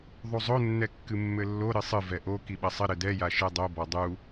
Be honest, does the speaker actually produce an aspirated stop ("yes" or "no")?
no